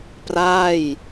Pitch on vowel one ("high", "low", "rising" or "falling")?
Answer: falling